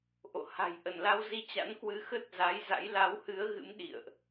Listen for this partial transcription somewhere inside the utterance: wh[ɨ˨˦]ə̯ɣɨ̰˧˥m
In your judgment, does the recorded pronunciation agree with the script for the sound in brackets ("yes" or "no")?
yes